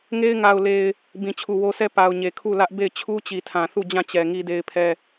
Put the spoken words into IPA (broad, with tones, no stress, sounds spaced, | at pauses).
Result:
ŋ e˦ ɪ̯ ŋ a˨ ʊ̯ l e˨ ɪ̯ | b ĩ˨ t͡ɕʰ u˨ w o˦ s ɛ˦ p a˨ ʊ̯ ɲ e˨ kʰ u˦˨ l ä˦ ʔ b e˦˨ ɪ̯ t͡ɕʰ u˦ t͡ɕ i˨ tʰ ã˨ θ u˦˨ d͡ʑ ã˦˨ t͡ɕ ɛ˨ ŋ i˦ d e˦ ɪ̯ pʰ ɛ˦